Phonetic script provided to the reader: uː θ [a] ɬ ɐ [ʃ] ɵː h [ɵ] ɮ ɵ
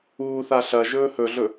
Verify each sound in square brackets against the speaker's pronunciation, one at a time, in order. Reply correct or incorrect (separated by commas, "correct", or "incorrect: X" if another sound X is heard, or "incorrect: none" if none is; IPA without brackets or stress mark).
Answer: correct, incorrect: ʒ, correct